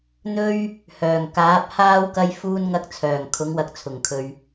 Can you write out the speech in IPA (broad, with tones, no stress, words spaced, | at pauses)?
n̪ɵ˥ɥ | hœː˨˩ŋkaː˨˥p̚haː˥w kɐ˥jfuː˥nŋɐ˥k̚ t͡sʰœː˨˩ŋkʰʊ˨˥ŋwɐ˨˥k̚ t͡sʰʊ˨˩ŋkʰɵ˨ɥ